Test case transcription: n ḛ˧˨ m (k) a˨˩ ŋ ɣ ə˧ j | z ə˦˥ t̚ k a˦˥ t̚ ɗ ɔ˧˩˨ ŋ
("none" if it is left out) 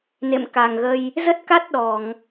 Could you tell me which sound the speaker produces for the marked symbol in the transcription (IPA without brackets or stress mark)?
k